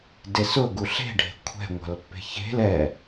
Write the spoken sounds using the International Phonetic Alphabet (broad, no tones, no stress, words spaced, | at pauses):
desʊ ɡuɬe̤ ɖʱe̤kʷʰɛ̤ ŋʷa̤lpːe̤çe̤l ɛ